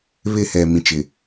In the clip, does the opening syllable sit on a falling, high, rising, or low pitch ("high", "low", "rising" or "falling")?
falling